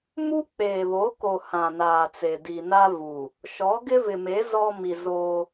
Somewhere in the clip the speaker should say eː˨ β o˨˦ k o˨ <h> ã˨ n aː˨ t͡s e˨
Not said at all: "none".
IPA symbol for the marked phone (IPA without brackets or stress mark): h